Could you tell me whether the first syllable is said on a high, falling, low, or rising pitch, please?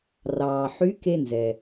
low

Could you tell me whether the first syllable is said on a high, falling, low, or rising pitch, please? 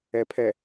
rising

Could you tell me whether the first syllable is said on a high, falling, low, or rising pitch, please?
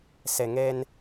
low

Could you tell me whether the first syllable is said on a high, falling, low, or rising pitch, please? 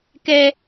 high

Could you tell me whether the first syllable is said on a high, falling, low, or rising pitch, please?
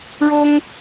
high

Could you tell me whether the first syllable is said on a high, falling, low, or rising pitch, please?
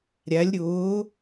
rising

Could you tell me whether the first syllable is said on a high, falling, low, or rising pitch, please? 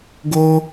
high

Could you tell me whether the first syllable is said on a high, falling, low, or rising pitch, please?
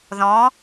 rising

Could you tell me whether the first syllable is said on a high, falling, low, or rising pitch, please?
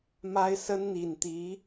high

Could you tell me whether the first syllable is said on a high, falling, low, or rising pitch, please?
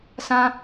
high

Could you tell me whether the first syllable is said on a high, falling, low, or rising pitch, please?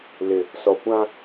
low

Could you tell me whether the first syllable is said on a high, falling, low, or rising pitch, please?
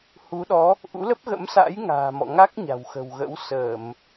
rising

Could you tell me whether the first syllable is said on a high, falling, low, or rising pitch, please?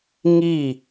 falling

